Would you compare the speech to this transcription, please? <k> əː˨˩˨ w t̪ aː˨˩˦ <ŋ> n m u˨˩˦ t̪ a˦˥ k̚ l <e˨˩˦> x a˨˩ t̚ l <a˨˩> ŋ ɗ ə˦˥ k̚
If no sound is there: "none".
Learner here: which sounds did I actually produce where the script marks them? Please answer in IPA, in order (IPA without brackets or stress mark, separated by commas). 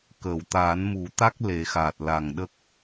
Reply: k, none, e˨˩˦, a˨˩